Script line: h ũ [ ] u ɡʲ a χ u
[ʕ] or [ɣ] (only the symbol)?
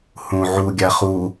ʕ